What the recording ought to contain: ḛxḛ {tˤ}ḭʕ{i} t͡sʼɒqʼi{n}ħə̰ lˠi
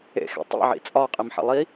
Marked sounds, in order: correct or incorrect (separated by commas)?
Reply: correct, incorrect, incorrect